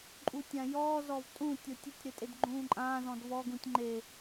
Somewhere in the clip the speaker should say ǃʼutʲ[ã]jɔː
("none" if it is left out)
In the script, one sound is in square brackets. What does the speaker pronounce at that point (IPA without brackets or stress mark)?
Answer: ã